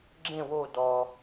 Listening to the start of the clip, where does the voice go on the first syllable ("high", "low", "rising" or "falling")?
falling